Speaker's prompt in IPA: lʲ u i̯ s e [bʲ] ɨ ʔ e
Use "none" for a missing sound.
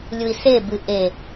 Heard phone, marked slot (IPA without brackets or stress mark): b